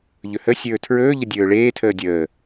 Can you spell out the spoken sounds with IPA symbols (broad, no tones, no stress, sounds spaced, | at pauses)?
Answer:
ʎ ɵ h ə sʲ ɵː tʰ ɹ ɵː ʎ ə dʲ ɵː ɭ eː tʰ əː dʲ əː